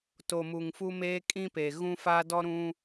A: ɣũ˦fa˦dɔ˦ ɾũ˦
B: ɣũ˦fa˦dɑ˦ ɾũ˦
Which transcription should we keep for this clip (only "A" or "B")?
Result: A